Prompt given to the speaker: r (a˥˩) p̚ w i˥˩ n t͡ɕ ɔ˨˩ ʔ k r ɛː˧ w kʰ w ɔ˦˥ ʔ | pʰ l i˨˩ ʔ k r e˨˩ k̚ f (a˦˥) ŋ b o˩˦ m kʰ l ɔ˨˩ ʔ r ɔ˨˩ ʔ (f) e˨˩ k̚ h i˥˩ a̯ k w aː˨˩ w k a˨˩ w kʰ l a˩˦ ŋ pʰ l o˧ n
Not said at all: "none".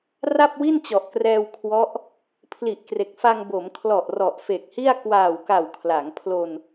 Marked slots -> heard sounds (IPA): a˥˩, a˧, f

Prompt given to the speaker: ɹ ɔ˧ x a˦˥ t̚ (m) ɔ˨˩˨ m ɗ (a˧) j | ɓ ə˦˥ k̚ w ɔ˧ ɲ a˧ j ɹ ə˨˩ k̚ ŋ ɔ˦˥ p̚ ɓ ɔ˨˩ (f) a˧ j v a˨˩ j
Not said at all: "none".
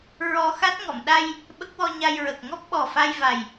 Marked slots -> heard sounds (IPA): ŋ, a˧, f

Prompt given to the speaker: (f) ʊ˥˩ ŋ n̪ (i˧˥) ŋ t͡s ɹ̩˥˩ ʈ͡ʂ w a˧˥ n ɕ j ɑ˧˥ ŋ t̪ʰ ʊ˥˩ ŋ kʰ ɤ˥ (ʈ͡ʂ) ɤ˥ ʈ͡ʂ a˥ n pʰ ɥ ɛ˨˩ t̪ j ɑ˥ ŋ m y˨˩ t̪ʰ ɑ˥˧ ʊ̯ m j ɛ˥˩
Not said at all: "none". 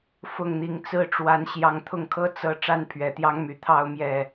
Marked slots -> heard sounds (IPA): f, i˧˥, t͡s

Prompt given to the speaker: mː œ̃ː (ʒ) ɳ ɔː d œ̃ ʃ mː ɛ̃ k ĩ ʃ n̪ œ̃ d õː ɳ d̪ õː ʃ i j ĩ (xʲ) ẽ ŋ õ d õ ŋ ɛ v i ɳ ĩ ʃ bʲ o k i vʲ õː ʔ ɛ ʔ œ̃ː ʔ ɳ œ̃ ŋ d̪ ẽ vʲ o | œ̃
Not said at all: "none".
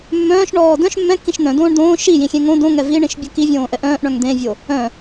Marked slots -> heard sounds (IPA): ʃ, xʲ

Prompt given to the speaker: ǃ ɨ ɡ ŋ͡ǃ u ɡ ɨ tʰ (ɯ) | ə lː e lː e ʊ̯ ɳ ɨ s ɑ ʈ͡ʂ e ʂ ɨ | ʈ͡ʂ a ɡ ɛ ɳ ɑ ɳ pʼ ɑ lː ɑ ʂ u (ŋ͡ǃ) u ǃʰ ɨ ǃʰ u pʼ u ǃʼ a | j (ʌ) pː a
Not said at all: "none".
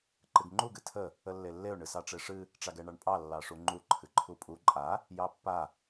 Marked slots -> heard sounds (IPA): ə, ŋ͡ǃ, ɑ

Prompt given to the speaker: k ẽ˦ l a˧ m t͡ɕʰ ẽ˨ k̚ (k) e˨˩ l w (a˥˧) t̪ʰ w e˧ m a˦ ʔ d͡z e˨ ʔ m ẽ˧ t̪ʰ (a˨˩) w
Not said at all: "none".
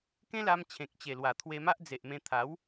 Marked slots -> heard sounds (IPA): t͡ɕ, a˨˩, a˨˦

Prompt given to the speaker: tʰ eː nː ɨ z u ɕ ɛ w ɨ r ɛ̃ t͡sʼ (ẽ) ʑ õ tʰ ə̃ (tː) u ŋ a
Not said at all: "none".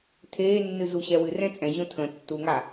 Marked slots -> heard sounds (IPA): ɛ̃, tː

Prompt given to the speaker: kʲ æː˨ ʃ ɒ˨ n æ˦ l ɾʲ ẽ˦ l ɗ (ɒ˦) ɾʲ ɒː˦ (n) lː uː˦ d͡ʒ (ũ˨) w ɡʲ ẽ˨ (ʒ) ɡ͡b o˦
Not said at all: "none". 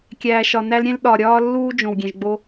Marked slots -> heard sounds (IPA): ɒ˨, none, õ˨, ʒ

